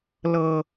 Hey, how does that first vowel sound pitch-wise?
low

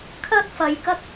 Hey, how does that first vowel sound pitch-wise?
high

